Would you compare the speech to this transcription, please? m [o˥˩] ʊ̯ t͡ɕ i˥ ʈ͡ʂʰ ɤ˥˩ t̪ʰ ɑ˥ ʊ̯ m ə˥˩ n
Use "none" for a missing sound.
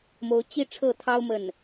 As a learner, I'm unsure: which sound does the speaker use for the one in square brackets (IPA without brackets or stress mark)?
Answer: o˧˥